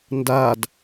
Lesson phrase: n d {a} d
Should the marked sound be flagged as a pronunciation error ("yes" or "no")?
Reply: no